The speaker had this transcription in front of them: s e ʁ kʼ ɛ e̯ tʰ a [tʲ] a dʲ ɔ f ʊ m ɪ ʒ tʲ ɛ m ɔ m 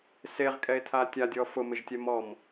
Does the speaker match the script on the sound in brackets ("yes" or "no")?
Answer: yes